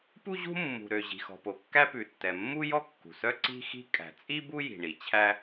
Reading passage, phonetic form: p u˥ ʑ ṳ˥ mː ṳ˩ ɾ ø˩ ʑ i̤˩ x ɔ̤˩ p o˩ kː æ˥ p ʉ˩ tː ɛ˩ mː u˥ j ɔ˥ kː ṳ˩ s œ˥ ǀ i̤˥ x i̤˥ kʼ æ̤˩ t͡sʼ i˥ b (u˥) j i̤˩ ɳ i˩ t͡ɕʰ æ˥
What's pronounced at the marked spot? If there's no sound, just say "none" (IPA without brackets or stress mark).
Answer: u˥